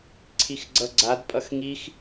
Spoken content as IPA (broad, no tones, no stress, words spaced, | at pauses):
ǀʰixɡ͡ǀʌɡ͡ǀadpʼʌx ŋix